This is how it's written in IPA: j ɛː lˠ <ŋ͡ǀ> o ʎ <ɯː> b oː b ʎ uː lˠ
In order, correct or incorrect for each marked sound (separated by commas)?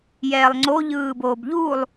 correct, correct